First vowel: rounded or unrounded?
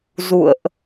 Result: rounded